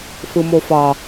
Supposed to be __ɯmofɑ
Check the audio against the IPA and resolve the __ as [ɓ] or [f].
f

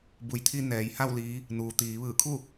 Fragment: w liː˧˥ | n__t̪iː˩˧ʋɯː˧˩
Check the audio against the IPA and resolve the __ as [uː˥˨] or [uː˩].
uː˩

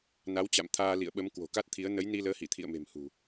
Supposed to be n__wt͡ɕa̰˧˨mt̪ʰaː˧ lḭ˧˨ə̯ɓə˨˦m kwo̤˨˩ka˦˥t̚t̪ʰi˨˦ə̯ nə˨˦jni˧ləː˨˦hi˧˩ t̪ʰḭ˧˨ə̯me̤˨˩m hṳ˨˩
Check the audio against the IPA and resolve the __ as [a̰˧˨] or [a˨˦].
a˨˦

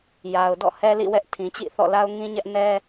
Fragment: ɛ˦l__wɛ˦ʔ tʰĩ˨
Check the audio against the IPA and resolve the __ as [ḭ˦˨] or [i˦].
ḭ˦˨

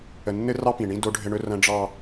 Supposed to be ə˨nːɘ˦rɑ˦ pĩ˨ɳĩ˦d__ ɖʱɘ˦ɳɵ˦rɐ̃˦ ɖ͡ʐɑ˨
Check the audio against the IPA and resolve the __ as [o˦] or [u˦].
o˦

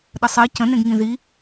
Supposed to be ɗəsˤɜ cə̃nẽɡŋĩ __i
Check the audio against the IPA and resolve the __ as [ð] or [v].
ð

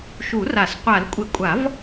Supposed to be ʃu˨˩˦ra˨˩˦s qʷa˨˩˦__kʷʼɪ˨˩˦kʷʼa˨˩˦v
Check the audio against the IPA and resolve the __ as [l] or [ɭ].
l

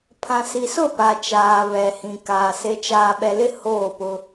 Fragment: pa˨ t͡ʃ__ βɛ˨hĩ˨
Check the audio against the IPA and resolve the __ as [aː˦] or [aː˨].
aː˨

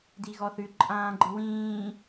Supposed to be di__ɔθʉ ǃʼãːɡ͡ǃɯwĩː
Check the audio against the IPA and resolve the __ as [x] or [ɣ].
ɣ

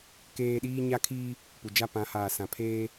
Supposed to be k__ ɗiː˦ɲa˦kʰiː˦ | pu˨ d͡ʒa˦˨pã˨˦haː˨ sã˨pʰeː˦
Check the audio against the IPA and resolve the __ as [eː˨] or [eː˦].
eː˦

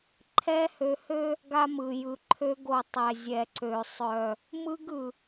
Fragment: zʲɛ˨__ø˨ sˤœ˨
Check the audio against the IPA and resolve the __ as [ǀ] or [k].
ǀ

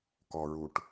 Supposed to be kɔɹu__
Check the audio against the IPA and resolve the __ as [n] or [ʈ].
ʈ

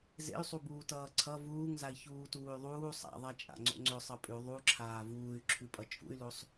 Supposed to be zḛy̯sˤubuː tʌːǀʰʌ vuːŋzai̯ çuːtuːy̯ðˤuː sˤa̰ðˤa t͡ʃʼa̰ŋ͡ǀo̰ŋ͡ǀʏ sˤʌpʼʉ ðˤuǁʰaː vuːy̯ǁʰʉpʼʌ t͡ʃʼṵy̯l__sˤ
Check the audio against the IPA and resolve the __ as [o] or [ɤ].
o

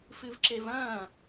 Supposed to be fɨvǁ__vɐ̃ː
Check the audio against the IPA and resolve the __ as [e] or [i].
e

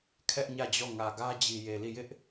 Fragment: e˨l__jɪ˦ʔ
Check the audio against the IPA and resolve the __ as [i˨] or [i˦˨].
i˦˨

